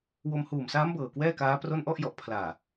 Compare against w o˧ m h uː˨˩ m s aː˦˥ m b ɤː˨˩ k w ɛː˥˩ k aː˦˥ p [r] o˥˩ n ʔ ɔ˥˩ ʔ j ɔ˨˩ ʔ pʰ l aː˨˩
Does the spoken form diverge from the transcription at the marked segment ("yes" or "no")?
no